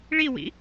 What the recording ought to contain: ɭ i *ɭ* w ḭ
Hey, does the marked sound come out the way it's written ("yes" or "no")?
no